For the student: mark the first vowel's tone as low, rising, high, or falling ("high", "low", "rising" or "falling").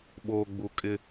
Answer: low